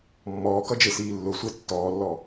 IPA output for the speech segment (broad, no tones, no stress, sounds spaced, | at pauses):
mː ɔː k ʌ d͡ʒ e s iː lː ʊ sʷ e tː ɔː lː ɔ